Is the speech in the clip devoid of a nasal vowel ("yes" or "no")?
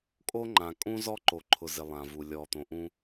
no